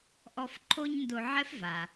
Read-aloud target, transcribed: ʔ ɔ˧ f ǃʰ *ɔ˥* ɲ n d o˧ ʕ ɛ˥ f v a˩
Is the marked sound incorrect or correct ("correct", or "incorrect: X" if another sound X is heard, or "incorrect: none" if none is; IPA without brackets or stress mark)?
incorrect: o˥